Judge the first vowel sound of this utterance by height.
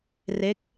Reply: mid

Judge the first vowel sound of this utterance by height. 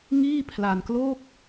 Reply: high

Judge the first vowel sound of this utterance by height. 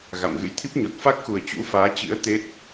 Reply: low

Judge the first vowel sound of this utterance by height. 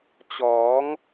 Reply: mid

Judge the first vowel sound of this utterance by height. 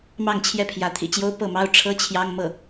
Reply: low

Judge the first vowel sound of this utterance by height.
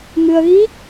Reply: high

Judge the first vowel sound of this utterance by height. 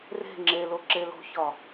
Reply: mid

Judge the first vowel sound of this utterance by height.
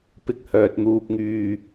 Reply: high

